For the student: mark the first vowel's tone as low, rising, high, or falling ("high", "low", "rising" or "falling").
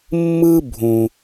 high